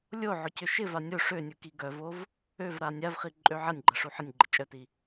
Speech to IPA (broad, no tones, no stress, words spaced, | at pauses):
lʲoʕʊ cøʃɪva nʲo ʂønʲu kiɡœvov | øvɾa nʲavχi ǃʼøʕɐnʲɡ͡ǃɐ ʂuħənʲɡ͡ǃɪ t͡ʃʼœti